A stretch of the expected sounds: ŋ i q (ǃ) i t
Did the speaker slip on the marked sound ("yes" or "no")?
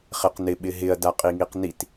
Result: yes